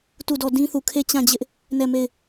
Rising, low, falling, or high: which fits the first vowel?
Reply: falling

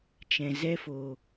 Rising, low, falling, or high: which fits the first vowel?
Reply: low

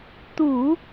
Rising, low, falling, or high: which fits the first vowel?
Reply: low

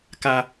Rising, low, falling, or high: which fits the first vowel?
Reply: high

